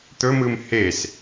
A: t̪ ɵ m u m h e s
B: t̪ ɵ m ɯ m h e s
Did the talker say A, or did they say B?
B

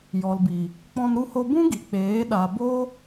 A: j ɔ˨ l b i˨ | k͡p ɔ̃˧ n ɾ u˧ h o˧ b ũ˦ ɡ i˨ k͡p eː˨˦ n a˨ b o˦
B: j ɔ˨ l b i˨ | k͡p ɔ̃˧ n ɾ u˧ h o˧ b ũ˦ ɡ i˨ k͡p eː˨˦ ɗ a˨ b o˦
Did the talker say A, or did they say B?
B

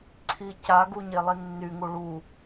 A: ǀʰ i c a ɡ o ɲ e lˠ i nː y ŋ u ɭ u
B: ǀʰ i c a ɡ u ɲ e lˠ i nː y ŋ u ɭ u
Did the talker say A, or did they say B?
B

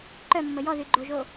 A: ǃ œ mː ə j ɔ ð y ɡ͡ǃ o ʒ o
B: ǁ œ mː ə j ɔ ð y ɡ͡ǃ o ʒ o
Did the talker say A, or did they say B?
A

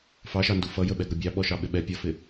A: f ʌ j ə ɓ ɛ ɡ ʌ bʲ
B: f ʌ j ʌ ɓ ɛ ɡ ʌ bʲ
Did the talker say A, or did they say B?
A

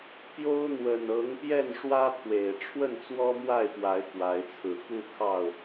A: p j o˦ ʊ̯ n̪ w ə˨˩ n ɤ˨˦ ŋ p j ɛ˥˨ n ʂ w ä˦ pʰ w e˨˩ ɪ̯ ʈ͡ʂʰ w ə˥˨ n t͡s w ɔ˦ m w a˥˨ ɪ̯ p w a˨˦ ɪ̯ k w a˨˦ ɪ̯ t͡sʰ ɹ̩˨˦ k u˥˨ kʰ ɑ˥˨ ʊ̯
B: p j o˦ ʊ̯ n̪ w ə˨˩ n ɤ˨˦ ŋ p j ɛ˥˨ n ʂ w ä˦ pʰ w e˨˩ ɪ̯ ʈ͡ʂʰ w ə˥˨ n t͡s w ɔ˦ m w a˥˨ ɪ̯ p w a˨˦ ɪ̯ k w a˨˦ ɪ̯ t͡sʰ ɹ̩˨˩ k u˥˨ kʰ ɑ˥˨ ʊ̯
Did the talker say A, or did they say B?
A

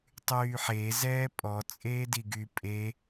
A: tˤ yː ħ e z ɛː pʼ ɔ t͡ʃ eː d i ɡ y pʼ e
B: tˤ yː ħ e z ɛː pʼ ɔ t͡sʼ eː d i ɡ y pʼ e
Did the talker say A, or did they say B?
B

